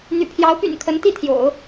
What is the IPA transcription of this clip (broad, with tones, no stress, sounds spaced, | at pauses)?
n̪ y̰˨˩ pʰ j ɑ˧˥ ʊ̯ p y̰˨˩ n kʰ ə˧˥ n t̪ i˥˩ t̪ʰ j o̰˨˩˦ ʊ̯